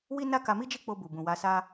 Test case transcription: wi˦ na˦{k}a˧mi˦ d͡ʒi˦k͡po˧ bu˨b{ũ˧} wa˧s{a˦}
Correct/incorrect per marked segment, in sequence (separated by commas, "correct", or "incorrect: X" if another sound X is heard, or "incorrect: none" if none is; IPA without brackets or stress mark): correct, incorrect: ũ˨, correct